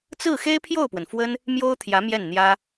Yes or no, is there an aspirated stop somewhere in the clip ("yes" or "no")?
yes